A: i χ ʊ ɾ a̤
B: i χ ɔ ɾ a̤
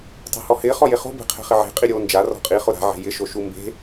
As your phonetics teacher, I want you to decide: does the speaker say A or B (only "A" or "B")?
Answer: A